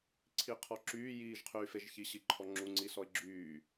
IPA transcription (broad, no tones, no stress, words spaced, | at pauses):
ǀʰiqʰɔǁyː jiːʒqʰyːfeʒçi ɕiǃʰɔŋ͡ǁu ŋ͡ǀisɔɪ̯ɡ͡ǁyː